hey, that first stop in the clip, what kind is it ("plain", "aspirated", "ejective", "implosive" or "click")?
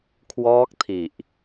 aspirated